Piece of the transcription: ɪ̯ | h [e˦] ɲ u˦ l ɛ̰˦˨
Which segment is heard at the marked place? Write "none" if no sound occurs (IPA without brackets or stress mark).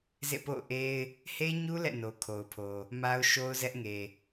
e˦